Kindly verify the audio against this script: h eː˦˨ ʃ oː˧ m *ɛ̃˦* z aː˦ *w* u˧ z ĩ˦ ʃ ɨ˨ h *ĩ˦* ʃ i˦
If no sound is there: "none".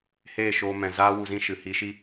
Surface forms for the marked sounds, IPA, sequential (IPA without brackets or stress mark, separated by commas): ɛ̃˨, w, i˦